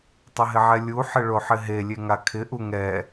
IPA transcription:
tˤ ɪ ɦ ɪ ʕ ɛ lʲ u ħ ɪ ɭ o ħ ɪ ɦ e lʲ e ŋ a kʰ ɪ ʔ u ŋ ɛ

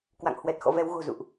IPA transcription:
k w a̰˧˨ ŋ h w ɛ˨˩ t̚ x ɔ̰˧˨ v ɛ˨˦ w ɣ o̤˨˩ z ṵ˧˨ ʔ

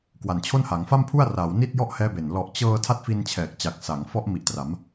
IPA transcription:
k w a˨˩ n t͡ɕʰ o˥˩ n h a˩˦ ŋ f a˥˩ m pʰ u˥˩ a̯ r aː˩˦ w n i˥˩ t̚ j ɔ˥˩ ʔ h ɛː˦˥ b e˨˩ n l ɔ˨˩ ʔ t͡ɕ ɤː˧ tʰ a˥˩ t̚ f i˧ n t͡ɕʰ ɛː˨˩ k̚ t͡ɕ a˨˩ k̚ s a˩˦ ŋ f ɔ˦˥ ʔ m i˨˩ ʔ t r a˩˦ m

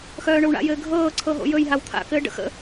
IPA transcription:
x œː ɳ ɵ w ɳ a̰ j ɘː ɡʱ ɤː ǀʰ ɤ ɦ o̰ j ɵ j ɦ a w t̪ʰ a̰ k ɘː ɖ ə̰ x ə̰

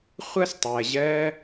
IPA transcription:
χʷ ʌ˦ s tˤ ɜ˨ ʑ ɜ˦

